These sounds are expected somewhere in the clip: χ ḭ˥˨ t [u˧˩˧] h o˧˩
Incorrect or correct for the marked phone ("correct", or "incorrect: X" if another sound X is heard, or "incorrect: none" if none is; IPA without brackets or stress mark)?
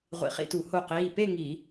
correct